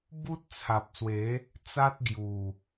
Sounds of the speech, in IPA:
b u˦ t̚ t͡sʰ a˨ p̚ s w e˨˦ | t͡s a˦ t̚ ɡ j u˨˩

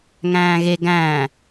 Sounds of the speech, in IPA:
ŋ æ̃ː ɣ e ɡ æ̃ː

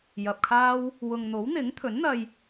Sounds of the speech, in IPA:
j ɐ˨ p̚ kʰ aː˥ w | w ʊ˨ ŋ n̪ o˨˥ w n̪ ɪ˨˥ ŋ t̪ʰ ɵ˨˥ n n̪ ɐ˧ j

